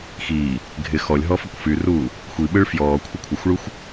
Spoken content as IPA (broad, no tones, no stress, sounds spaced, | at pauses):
x iː | ɡʱ ɪ x ɔ lʲ ɦ ɔ f ə kʷ f y r uː | xʷ i ɓ ɯ ɭ f j ɔː kʷʰ ɪ kʷʰ ə xʷ ɭ u xʷ